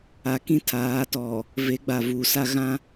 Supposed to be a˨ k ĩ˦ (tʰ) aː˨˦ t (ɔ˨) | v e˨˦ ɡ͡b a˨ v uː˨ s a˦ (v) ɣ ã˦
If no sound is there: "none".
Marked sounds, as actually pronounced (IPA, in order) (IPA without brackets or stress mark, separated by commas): tʰ, ɔ˨, none